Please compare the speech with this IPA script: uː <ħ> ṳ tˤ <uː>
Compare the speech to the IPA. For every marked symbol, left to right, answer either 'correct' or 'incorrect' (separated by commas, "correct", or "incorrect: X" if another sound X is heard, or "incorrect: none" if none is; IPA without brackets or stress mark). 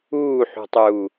correct, correct